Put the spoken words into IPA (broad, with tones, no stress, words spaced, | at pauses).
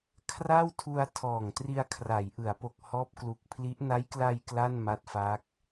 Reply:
kʰra˥˩wtʰu˧a̯ tʰɔː˨˩ŋtri˧a̯ kʰra˩˦jʔɯ˩˦a̯po˨˩k̚ hɔː˦˥p̚klu˨˩k̚pʰli˦˥ʔ na˦˥jkla˧j kla˥˩nma˦˥t̚fa˦˥k̚